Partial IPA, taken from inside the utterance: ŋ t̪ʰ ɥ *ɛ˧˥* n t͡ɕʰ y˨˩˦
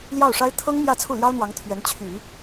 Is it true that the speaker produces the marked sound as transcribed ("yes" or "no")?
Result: yes